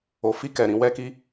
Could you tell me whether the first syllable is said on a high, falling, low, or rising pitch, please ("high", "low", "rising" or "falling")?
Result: low